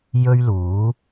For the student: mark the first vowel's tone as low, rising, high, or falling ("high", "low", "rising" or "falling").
high